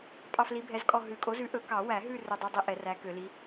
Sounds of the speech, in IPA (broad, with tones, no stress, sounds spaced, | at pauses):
pʼ ɑ˦˨ f l i˨˥ bʱ ɛ˨˥ z kʼ ɔ˦˨ ɦ ʉ˨˩˦ kʼ o˨˥ z ʉ˨˥ ʔ ɵ˨˩˦ k ɑ˨˩˦ w æ˨˩˦ ɦ ʉ˦˨ r ɵ˦˨ dˤ u˦˨ dˤ i˦˨ ʔ ɛ˨˩˦ r æ˨˥ k ø˨˩˦ l i˨˥